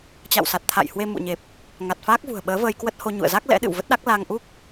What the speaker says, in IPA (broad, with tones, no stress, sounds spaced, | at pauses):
t͡ɕ a̰˧˨ w s a˨˩ t̚ t̪ʰ a̰˧˨ j h w e˧ m ṵ˧˨ ɲ e˨˩ p̚ | ŋ a˨˩ t̚ f aː˦˥ k̚ v ṳ˨˩ ə̯ ɓ əː˨˦ v əː˧ j k w ə˦˥ t̚ h o˧ ɲ ṵ˧˨ ə̯ z a˦˥ k̚ l ɛ̰˧˥ ɗ ɨ̰˧˨ w v ə˦˥ t̚ ɗ a˦˥ k̚ l a˧ ŋ ʔ u˦˥ k̚